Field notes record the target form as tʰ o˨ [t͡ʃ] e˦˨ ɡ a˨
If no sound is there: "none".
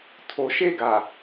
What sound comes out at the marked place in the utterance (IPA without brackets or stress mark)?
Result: ʃ